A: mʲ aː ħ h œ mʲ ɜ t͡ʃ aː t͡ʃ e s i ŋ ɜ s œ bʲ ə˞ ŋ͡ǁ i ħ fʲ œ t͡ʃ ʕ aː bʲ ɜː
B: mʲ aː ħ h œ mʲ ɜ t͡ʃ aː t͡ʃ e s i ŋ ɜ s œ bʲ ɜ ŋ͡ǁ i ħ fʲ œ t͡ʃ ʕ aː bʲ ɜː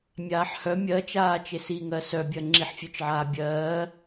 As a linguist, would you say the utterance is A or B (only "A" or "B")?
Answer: B